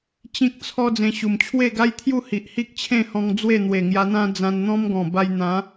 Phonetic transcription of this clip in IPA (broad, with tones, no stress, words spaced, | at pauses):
t͡ɕĩ˦k̚t͡sʰɔ˦ d͡zẽ˧ɕu˨˩m t͡ɕʰwe˥˧ɡa˦jt̪ʰju˥˧ hi˨ʔhi˦k̚t͡ɕʰẽ˥˧hɔ̃˧ŋ d͡zwe˥˧n̪we˨˩ŋja˧n̪ã˦ d͡zã˧nn̪ɔ̃˦mɡɔ̃˨˩ba˧j n̪ã˨˦